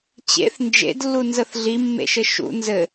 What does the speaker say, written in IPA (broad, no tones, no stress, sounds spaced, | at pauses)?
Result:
t͡ɕ ḛ θ n d͡ʒ ḛ d lː u n z ə θ ɮ i mː ḛ ʃ ɘ ʃ ṵ n z ɘ